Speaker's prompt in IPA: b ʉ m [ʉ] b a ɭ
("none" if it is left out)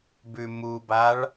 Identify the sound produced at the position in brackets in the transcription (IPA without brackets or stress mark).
u